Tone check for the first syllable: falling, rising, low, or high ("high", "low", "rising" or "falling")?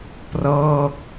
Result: falling